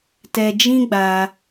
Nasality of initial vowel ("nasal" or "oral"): oral